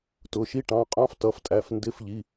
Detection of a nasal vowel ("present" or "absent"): present